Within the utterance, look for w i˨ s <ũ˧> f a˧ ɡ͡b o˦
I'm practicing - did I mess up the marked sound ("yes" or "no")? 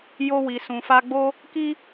yes